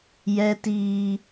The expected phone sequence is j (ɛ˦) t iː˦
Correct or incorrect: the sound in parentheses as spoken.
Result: correct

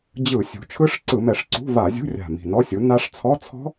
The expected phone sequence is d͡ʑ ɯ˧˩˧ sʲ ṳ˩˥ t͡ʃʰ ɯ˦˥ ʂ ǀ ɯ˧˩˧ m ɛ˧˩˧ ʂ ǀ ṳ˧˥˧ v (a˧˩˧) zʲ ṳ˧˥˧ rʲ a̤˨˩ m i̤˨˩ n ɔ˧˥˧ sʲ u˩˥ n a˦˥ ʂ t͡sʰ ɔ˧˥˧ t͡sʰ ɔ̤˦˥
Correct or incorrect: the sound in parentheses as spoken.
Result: correct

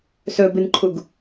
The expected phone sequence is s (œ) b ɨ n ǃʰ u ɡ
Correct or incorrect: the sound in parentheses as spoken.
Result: incorrect: ɵ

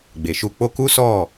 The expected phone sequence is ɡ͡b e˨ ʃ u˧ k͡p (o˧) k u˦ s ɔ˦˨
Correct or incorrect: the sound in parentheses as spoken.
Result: correct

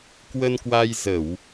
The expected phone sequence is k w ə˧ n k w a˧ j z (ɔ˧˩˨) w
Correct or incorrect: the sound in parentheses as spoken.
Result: incorrect: ə˧˩˨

